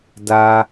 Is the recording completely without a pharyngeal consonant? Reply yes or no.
yes